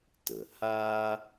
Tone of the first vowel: low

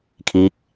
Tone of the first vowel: rising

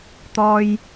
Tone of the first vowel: high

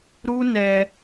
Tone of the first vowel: high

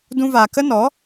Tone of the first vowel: high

